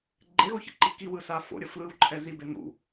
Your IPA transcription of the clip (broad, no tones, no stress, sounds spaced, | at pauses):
ɡ͡ǃ e ɣ o ç ḛ ǃ i k i w ɯ s a f o̰ ɾʲ ʌ f l ɯ w ǃʰ ɛ z i b e n̪ ṵ